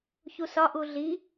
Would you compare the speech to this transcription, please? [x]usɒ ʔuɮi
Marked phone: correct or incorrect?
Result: incorrect